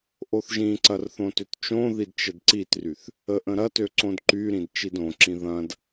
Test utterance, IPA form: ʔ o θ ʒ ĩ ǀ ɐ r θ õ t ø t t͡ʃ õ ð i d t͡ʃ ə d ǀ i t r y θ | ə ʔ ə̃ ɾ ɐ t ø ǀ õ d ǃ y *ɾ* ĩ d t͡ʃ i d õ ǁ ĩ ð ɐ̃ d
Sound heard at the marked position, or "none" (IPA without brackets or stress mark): ɾ